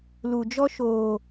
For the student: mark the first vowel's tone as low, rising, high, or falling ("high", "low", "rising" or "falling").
low